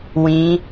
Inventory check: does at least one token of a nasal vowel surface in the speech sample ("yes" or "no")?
yes